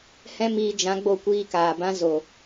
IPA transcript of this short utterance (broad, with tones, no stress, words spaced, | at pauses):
hɛ̃˦miː˧ d͡ʒã˨˦ ɡ͡bo˧kʷiː˧ kaː˨bã˦zo˨